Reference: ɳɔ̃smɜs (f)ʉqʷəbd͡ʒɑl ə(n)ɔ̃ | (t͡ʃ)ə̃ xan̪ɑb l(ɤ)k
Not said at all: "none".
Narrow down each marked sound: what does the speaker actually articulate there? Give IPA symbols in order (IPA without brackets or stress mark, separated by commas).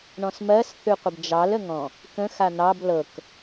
θ, ŋ, k, ɤ